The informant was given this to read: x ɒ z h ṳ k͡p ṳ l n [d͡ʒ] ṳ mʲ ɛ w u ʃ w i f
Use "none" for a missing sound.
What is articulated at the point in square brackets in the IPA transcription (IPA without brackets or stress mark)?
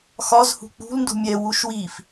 d